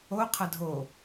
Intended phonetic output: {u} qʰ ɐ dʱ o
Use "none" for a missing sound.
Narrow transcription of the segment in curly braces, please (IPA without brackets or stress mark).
o